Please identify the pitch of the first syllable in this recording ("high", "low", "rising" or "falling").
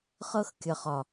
high